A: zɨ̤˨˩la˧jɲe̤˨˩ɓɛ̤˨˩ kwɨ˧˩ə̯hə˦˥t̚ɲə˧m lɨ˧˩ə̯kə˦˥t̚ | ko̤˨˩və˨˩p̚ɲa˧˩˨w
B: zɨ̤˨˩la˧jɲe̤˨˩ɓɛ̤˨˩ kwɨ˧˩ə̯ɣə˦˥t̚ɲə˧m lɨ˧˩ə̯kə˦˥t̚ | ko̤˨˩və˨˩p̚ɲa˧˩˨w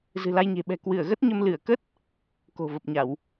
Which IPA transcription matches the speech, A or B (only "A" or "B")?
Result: B